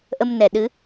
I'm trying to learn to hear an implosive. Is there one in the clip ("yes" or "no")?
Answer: yes